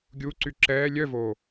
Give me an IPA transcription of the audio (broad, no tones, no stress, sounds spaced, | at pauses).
ɡʲ u ǀ y ǁ ɛː lʲ œ v oː